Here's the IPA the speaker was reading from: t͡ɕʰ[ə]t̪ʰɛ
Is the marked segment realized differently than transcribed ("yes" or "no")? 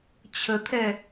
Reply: no